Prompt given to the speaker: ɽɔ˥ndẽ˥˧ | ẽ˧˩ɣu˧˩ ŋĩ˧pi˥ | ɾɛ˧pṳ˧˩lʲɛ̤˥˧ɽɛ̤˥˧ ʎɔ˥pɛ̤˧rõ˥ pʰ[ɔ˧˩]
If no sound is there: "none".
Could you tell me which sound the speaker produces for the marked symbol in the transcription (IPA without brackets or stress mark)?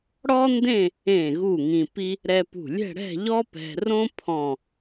ɔ̃˧˩